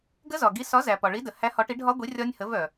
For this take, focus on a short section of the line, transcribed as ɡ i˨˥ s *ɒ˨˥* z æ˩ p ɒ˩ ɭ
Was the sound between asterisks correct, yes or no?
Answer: yes